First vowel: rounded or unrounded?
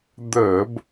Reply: unrounded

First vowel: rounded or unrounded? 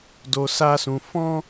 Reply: rounded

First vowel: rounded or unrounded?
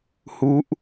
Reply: rounded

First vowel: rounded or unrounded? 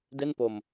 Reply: unrounded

